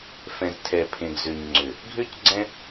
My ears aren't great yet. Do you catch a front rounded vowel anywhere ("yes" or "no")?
yes